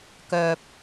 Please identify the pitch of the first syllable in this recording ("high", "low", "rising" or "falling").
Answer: low